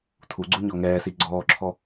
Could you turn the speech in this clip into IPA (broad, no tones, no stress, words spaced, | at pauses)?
tʰuɡ͡ǀu ɲɔŋɛːsi ɡ͡ǀɔːǁʰɔ